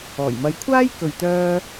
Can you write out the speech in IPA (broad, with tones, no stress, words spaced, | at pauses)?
ɔː˨˩jmɐ˨˧j kʷʰaː˥j kɵ˨ɥt̪œː˧